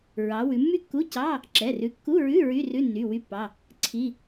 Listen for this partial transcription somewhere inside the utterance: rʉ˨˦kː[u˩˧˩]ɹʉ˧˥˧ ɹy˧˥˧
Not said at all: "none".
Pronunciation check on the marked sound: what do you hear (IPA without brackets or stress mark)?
u˧˥˧